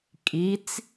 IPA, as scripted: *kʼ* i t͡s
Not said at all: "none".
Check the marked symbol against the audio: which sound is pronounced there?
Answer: kʼ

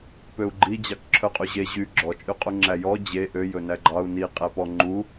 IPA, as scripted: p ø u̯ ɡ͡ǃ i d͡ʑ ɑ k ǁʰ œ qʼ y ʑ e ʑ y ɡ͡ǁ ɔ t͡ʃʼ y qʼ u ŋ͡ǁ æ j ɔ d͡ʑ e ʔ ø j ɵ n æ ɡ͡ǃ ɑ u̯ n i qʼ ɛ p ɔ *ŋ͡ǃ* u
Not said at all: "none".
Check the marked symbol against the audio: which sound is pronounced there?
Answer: ŋ͡ǃ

